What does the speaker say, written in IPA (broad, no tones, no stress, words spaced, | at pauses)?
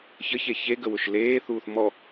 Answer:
çəçe çeɡə wʊʃleːθuːθ mɔ